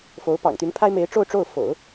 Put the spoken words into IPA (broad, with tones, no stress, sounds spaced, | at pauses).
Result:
f o˧˥ ʊ̯ p ɑ̰˨˩ ŋ t̪ y˧˥ n pʰ a˥ ɪ̯ m e˧˥ ɪ̯ ʈ͡ʂ o˥˧ ʊ̯ ʈ͡ʂ o˥˩ ʊ̯ f o̰˨˩˦ ʊ̯